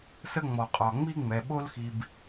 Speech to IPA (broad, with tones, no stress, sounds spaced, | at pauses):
s ə˦ ŋ͡m ɔ˩ qʼ ɒ˩ ŋ͡m i˥ ŋ͡m ɛ˩ ɓ o˦ l x i˨ b